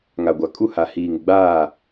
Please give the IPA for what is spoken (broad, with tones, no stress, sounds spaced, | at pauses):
ŋ a˨ ɡʷ a˨ kʼ u˦ h a˨ h iː˨ ŋ ɪ˨ ɡ͡b aː˦˨